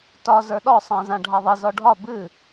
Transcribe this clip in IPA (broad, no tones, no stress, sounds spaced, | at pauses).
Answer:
t ɒ z ə˞ ɗ ɔ sˤ ã z ã ɖʱ a ðˤ i z ɔ ɖʱ ɒ b ɨ